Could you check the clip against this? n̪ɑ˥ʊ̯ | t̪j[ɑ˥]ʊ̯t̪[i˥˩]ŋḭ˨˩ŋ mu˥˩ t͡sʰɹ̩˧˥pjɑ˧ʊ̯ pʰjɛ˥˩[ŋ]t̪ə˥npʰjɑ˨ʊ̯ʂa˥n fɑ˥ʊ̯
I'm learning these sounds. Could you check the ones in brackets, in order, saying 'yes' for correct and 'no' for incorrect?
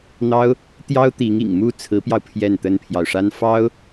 yes, no, no

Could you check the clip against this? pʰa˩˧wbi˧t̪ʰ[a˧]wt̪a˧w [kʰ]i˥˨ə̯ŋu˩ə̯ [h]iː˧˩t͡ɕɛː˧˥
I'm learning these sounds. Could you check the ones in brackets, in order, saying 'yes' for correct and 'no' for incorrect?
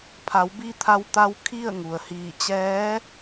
yes, yes, yes

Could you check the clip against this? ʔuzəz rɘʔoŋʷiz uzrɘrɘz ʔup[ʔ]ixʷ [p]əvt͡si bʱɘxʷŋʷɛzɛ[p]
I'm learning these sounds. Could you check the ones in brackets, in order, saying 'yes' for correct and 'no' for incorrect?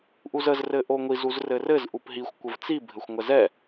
no, no, no

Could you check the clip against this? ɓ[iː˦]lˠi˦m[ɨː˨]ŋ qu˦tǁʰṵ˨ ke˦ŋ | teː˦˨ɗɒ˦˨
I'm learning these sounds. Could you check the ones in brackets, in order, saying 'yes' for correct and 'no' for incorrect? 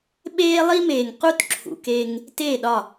no, no

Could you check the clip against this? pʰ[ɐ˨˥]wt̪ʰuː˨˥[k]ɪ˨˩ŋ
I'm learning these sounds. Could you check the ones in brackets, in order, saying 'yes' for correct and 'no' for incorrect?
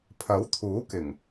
yes, yes

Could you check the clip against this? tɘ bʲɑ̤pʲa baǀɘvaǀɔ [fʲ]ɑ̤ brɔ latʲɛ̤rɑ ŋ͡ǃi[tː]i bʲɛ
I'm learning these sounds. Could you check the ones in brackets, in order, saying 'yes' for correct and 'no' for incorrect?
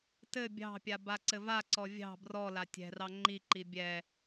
no, no

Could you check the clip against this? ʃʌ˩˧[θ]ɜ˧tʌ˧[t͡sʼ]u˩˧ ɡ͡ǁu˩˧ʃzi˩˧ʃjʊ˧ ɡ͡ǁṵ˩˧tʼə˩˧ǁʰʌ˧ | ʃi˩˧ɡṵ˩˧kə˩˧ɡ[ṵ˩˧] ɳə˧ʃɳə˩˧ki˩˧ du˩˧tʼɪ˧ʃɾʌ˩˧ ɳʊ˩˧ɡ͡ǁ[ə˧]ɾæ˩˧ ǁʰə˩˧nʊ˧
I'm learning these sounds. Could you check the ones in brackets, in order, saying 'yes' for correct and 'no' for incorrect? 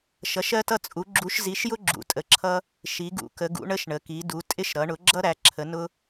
no, yes, yes, no

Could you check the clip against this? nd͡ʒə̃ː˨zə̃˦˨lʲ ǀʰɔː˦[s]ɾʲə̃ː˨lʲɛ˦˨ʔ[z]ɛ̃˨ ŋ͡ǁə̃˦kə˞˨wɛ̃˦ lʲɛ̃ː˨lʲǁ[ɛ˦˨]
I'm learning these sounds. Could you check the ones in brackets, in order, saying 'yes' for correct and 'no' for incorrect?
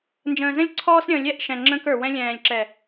yes, no, no

